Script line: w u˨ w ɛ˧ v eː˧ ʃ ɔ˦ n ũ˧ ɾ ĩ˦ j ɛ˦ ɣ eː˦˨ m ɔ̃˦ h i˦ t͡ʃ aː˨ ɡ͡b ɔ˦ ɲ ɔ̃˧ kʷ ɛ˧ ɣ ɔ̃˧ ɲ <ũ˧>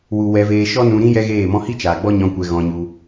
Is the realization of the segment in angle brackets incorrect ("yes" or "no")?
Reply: yes